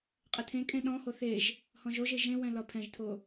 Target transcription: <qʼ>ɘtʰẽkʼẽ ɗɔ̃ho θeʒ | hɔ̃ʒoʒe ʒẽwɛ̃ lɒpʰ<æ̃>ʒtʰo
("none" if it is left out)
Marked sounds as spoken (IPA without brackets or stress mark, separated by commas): qʼ, ɛ̃